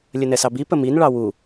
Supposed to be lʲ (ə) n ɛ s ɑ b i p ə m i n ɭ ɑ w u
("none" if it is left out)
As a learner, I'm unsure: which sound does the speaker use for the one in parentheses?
ə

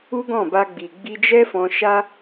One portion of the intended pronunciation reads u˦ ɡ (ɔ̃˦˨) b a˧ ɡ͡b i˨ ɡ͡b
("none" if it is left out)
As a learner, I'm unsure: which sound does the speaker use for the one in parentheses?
ɔ̃˦˨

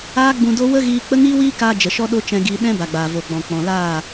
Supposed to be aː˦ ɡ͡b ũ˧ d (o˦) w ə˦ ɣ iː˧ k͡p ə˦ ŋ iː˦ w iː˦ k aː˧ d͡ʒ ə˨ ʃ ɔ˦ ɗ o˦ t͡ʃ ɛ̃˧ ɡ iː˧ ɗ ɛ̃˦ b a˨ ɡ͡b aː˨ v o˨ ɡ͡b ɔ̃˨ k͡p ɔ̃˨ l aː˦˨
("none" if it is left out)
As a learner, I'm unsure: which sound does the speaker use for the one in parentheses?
o˦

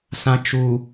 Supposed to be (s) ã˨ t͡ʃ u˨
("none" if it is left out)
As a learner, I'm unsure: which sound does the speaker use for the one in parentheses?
s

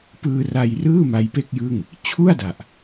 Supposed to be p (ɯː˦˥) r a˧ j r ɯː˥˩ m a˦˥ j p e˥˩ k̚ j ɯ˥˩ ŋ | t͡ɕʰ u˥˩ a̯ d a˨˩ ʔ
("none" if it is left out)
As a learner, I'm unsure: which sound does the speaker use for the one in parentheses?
ɯː˧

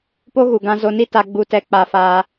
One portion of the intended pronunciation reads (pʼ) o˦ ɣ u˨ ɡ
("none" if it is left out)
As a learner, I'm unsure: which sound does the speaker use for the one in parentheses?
p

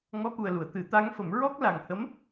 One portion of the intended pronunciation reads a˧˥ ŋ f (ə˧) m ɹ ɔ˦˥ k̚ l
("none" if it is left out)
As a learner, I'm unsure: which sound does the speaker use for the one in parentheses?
ə˨˩˦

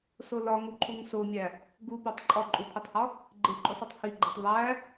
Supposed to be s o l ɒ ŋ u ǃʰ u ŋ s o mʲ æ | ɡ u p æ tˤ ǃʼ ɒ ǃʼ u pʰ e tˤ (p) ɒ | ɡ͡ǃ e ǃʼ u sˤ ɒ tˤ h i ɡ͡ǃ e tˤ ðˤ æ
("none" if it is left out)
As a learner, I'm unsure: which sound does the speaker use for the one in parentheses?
h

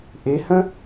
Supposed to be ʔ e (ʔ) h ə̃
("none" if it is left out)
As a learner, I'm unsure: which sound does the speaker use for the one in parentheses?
none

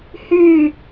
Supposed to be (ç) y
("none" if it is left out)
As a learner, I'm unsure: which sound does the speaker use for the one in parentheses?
h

